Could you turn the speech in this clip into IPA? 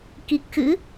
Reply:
k i˨˩ k̚ x ɨ̰˧˥

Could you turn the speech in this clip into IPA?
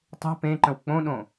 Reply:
tˤ e̤ p ẽ ǃ ə̃ w k͡p õ ɗ õ

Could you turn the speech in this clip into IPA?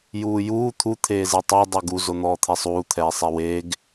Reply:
j uː j uː t̪ʰ u t̪ʰ eː z ɛ tˤ u dˤ u ɡ u z o n̪ ɔː t̪ʰ ɛ sˤ uː t̪ʰ ɛː sˤ ɛ w eː ɡ

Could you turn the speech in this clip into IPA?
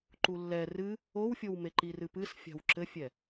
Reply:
ǃ u lː ɛ r ɨ | o w fʲ o w m e ǃ i r ɨ p ɨ s fʲ a̤ w ǁ ɘ fʲ ɛ

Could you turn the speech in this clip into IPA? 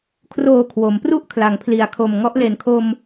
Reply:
kʰ r oː˨˩ kʰ w o˩˦ m p r u˥˩ ʔ kʰ l a˩˦ ŋ pʰ l i˩˦ a̯ kʰ o˨˩ m ŋ ɔ˦˥ ʔ l e˨˩ n kʰ o˧ m

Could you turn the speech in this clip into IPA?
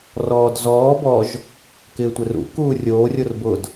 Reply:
r ɔː d z ɔː b ɔ ʒ | k ɪː tʷ ɪ r ṵ k uː rʲ oː rʲ o r b ʊ d

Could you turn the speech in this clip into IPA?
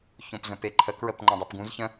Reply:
ç õ p z ə̃ p e ǃʰ ə k ɹ ə p ŋ͡ǃ õ dˤ u p ɡ ũ z ç ə̃

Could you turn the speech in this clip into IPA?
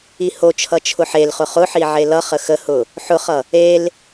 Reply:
i h o t͡ʃʰ ʌ t͡ʃʰ ʊ ħ e l χ ʊ χ ʊ ħ i ʕ e l ʌ χ ə x ə h ʊ | ħ ʊ χ ʌ | e l

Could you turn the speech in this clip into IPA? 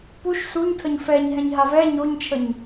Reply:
p u ʃ s u ɲ tʰ ə ɲ f ɛ ɲ ɦ ɛ̃ ɲ ɦ a v ɛ ɲ o ɲ t͡ʃʰ ə ɲ

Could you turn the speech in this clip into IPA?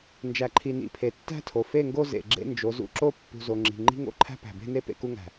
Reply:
n d͡ʒ æ˨ ǃʰ i˨ n ḭ˨ pʰ e˨ tː æ̤˦ tʰ o˨ f e˦˨ ŋ ɡ o˦ z ḛ˨ ɡ͡ǁ ḛ˦ n d͡ʒ o˨˦ z ṵ˦ ǁ o˦ pː ṳ˨ z o˨ ŋ͡ǁ i̤˨ ŋ͡ǃ i̤˦ ŋ o̰˦˨ ǃʰ æ̤˦ p æ̤˨ b e̤˦ n e˦ p ḛ˨ k u˦ ŋ æ̤˨

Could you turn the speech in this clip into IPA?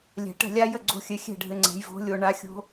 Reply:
lʲ ɛ̤˨ ʈ ɛ̤˥˨ lʲ a˦˥ j ə˥˨ ɡ͡ǀ o̤˦˥ xʲ ɘ˨˥ xʲ ɛ̤˥˨ ɖʱ ɘ˨˥ ŋ͡ǀ ɛ̤˨˥ j v o̤˦˥ lʲ o˥˨ ɳ a˦˥ xʲ o̤˦˥

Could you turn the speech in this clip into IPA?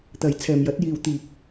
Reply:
t̪ ɐ˨ j t͡sʰ ɛː˨ m j ɐ˨˥ t̚ j iː˨ w t̪ iː˨ k̚

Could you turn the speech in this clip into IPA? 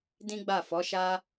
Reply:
d ĩ˦ ɡ͡b a˦˨ f ɔ˨˦ ʃ a˦

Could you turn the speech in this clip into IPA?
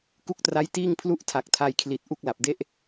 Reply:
k u˦˥ k̚ t r a˦˥ j t iː˥˩ ŋ pʰ l u˥˩ ʔ tʰ a˨˩ k̚ tʰ a˧ j kʰ l i˨˩ t̚ ʔ u˥˩ k̚ l a˨˩ p̚ d e˥˩ ʔ

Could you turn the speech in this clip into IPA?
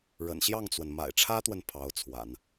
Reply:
ɻ ə̰˨˩ n ɕ j ɑ˥˩ ŋ t͡s w ə˩ n m a̰˨˩ ɪ̯ ʈ͡ʂʰ ä˥ t̪ w ə˨ n pʰ ɑ˧˥ ʊ̯ t͡sʰ w a̰˨˩˦ n

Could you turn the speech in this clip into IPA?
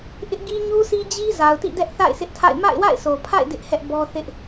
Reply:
ʔ ɪ˦ ʔ ɡ i˦ ɲ u˦ s i˦ d͡ʑ i˦ z a˨ ʊ̯ t ḭ˦˨ d ɛ˦ ʔ θ a̰˦˨ ɪ̯ s ɪ˦ ʔ tʰ a̰˦˨ ɪ̯ m a̰˦˨ ɪ̯ w a̰˦˨ ɪ̯ s o˨ pʰ a̰˦˨ ɪ̯ d ɪ˦ ʔ h ɛ˦ ʔ b ɔ˦ θ ɪ˦ ʔ

